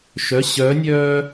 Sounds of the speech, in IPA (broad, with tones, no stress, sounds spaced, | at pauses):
ʃ œ˩˧˩ ɕ œː˨˥ nʲ œː˦